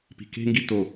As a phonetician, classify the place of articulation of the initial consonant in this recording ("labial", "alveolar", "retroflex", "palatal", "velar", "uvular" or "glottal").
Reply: labial